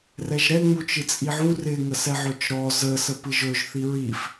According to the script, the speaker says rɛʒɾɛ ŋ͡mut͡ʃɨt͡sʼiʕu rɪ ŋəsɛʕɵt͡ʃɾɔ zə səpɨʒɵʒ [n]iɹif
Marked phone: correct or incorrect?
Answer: incorrect